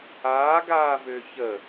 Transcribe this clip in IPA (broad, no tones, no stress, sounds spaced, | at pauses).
aː ɡ aː v ʏː ç ə